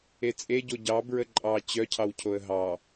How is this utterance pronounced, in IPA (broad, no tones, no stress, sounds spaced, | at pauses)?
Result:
e t͡sʼ e ɟ o ɟ ɑ b ɹ ə ǃʼ ɑ t͡ɕ œ cʰ ɑ w cʰ o ə̯ ɦ ɑ